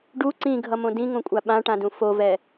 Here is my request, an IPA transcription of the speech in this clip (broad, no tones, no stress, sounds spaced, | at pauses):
ɖ u ǀ ĩ ɡʱ ʌ m õ d ĩ ŋ õ kʷʼ a ɓ ã ʈ ã d ũ f o v ɛ